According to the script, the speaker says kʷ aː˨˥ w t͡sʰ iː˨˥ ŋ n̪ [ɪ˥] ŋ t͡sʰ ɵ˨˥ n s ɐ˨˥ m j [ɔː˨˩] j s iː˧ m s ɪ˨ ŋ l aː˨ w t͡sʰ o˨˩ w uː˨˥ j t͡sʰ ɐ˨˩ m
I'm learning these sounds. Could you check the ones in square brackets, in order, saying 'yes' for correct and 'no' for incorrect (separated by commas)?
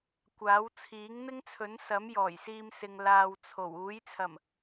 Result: yes, yes